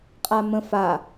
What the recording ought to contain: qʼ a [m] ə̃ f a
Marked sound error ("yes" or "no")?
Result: no